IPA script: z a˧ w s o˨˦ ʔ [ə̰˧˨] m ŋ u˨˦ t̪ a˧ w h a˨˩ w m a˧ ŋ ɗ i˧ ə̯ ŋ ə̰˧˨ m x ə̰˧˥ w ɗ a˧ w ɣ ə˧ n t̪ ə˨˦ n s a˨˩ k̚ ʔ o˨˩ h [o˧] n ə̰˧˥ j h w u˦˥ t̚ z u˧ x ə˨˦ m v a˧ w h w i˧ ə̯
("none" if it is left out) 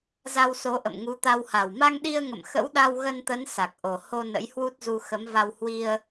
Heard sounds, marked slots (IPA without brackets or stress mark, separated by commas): ə̰˧˨, o˧